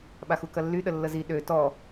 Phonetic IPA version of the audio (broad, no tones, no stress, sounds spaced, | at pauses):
ɓ a x u k ɐ lː y ɗ ə lː ə z i ɗ ø t ɔ